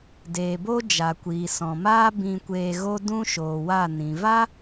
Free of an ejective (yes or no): yes